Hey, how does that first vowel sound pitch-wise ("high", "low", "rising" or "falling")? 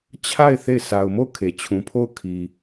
falling